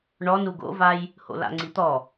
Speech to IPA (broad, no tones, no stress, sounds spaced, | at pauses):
ɳ ɔ n u ɡ o̰ v a j | h o̰ l a̰ ŋ͡ǀ i t̪ ɔ